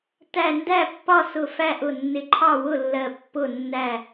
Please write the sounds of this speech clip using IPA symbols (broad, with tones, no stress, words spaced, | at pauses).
tæ˧˩ ndæ˥˨pːɒ˥˨sʊ˧˩ fæ˥˨ʔʊ˧˩nːɪ˧˩ ǃʰɑ˥˨wʊ˥˨lːɜ˧˩ pːʊ˥˨nːæ˥˨